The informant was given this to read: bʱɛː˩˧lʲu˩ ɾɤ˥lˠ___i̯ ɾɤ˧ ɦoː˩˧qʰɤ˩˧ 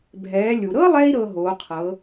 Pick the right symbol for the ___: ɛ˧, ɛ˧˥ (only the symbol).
ɛ˧